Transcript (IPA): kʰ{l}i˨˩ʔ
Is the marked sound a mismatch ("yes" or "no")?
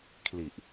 no